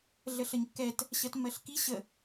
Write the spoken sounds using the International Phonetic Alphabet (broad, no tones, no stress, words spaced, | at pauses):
ɮəɬəɲkːɛt | ɕɜtmːɜɬki ɕə